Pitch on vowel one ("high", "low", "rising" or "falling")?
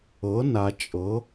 rising